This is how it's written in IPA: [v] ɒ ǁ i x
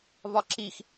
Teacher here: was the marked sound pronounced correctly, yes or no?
yes